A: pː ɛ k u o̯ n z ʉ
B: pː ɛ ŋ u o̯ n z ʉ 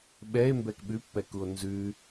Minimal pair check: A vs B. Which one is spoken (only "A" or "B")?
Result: A